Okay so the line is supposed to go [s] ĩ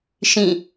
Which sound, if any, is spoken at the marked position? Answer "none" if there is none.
ʃ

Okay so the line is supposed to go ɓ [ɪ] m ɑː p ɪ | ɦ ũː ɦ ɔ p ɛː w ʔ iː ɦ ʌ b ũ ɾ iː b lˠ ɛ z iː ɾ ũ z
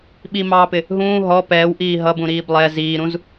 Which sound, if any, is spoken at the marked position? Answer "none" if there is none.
i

